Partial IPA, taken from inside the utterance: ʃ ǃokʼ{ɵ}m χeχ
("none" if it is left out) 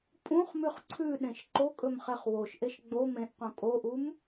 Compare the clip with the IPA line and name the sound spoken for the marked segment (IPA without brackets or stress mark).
ɵ